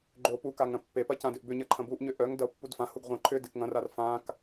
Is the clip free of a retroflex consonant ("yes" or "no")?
yes